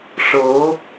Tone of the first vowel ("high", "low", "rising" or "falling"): rising